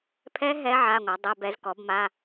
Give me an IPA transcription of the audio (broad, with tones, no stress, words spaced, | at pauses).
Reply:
pʰɛ˦˥ ɦɛ˦˥ ʕa˧˥˧ŋʷa˩˥dˤɛ˧˥˧b ɛ˩˥zkɔ˩˥bma˧˥˧